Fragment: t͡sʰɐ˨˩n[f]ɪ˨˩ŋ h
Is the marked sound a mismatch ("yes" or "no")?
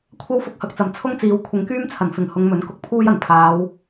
no